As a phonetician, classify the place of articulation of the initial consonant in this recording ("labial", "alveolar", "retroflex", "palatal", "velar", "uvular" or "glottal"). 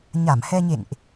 palatal